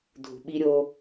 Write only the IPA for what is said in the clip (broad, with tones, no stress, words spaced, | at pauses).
dʱṳ˨ɓi˦ɾʲo˦